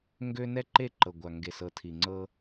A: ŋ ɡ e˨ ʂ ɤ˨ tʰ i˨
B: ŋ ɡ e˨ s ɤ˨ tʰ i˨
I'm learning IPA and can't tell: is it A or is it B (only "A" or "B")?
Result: B